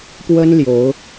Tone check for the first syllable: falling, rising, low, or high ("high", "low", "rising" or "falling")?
high